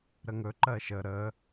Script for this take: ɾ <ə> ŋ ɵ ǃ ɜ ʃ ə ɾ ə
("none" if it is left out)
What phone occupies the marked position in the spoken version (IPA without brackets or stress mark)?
ə